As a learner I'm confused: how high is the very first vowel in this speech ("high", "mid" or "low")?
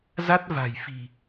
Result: low